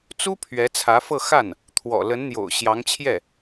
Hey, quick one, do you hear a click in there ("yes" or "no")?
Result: no